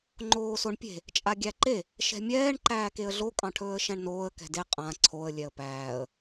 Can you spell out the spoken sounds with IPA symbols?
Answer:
ŋ͡ǃ oː s o ɳ pʲ e̤ | t͡ʃʼ a ɡʲ æ ǃ e | ʃ ɛ̤ mʲ ɛː ɳ ǃ æː k e ə̯ ɮ o kʼ ɑ̃ ʈʰ ɵː ə̯ ʃ æ̃ ɳ n oː ə̯ k ɛ̤ d e qʼ ã ǀʰ o ə̯ lʲ ɛ ə̯ p æː ə̯

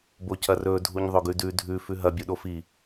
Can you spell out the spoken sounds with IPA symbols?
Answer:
b o c ɐ r ɵ dʱ u ɲ ðˤ ɵ ɡ ʉ d ʉ dʱ ʉ f ʉ ɦ ɐ bʲ u ɗ o f i

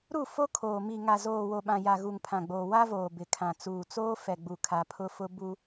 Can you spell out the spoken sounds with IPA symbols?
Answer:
ɾ u˦˨ f o˦ kʰ oː˨ m i˨ ŋ a˨ z oː˨ w o˨ ɓ ã˨ j a˨ ɣ u˨ ŋ pʰ ã˨ ɡ͡b oː˨ w a˦ v oː˨ b ɪ˨ kʰ ã˨ t͡s uː˨ t͡s oː˦ f ɛ˨ ɡ͡b u˨ kʰ a˨ pʰ ʊ˦ f ʊ˦ b u˦

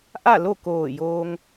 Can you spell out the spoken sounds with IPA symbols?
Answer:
ʔ a˥˨ l o˥˨ k oː˧˩ j oː˧ ŋ

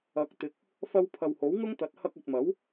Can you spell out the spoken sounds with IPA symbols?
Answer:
ɐ˨˥ k̚ t̪ ɪ˨˥ k̚ | f ɐ˧ w pʰ ɐ˨ w h o˨˥ w ŋ ʊ˥ ŋ t̪ ɐ˨˥ t̚ h ɐ˧ k̚ ɵ˨ t̚ m ɐ˨˥ w

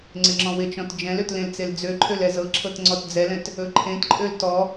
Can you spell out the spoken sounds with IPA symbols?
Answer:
ŋ͡ǀ ɪ ŋ͡ǁ ɔ̃ w ɪ t͡ʃ ɔ̃ t d͡ʒ ɛ̃ l ø t l ẽ l t͡s e l d͡z ø ǃʰ ø l ɛ z ɤ ǁʰ ɤ t ŋ͡ǀ ɔ t d͡z ɛ l ɛ̃ t | ɵ ǃʰ ẽ t ǃʼ ø l t ɔ

